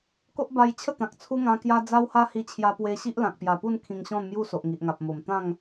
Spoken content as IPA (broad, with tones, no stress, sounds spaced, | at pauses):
k o˦ ʔ b a˧ j t͡ɕʰ ə˥˧ t̪ ã˨ k̚ t͡sʰ u˦ ŋ ã˧ k j a˦ d͡z a˦ w h a˦ h i˧ t͡ɕʰ j a˧ p w e˧ ɕ i˦ ʔ l ã˨ k̚ p j a˨˩ p u˥˧ n kʰ ĩ˧ ŋ ɕ ɔ̃˥˧ n m j u˥˧ s o˨ ʔ ŋ i˨ ʔ ŋ a˨ p̚ m o˨˩ m t̪ ã˥˧ ŋ